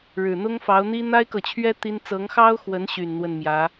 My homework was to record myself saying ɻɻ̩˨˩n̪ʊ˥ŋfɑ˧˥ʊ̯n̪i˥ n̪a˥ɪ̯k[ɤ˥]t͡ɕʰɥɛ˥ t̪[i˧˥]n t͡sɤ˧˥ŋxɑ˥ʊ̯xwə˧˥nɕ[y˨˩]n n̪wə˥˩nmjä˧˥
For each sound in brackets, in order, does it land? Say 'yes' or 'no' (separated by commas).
no, no, yes